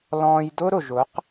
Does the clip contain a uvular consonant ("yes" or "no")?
yes